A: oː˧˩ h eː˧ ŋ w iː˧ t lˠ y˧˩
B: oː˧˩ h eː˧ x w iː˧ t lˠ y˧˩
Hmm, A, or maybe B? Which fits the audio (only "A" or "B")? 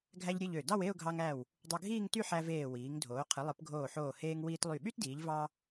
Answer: A